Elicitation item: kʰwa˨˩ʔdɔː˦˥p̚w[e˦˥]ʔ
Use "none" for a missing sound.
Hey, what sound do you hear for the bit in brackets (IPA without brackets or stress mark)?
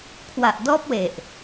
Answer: e˨˩